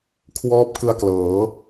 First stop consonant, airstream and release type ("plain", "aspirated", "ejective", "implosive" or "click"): aspirated